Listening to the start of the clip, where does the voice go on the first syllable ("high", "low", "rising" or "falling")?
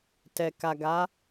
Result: low